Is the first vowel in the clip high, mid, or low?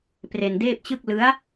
mid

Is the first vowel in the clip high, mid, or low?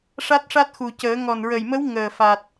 low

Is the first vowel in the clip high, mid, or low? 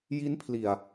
high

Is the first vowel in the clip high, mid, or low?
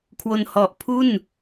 mid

